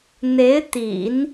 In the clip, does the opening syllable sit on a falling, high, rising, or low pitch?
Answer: rising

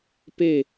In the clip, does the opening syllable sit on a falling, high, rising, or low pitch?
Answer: falling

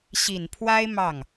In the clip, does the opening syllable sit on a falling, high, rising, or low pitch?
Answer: low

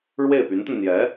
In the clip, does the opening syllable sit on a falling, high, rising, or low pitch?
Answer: falling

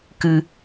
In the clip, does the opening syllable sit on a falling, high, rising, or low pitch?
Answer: low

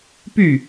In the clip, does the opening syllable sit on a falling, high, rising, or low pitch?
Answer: falling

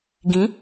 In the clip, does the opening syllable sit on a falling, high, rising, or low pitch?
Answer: rising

